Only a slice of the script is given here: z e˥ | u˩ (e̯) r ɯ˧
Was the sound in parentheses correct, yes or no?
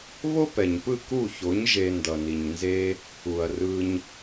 no